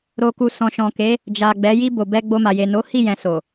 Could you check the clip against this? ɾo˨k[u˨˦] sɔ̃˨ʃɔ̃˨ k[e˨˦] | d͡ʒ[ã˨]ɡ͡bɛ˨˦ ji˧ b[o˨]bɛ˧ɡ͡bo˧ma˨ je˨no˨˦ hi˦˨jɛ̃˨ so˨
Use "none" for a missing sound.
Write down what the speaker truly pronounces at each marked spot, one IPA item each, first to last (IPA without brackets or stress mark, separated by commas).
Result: u˨, e˨˦, a˨, o˨